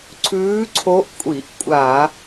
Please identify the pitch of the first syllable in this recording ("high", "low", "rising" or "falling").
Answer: rising